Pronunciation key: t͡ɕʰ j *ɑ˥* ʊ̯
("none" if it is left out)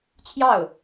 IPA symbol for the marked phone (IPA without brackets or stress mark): ɑ˥˩